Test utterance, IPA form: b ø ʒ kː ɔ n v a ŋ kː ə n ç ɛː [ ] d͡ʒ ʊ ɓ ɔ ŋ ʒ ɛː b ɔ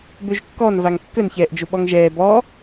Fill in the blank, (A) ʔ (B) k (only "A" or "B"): A